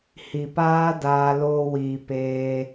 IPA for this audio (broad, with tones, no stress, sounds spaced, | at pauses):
h i˨ p aː˦ d aː˧ l oː˧ w iː˨ p eː˧